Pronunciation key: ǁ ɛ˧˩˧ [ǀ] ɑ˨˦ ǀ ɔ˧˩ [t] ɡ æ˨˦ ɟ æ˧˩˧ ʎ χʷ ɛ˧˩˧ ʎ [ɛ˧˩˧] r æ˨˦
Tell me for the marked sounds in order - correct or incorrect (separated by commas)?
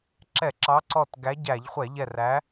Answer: incorrect, correct, incorrect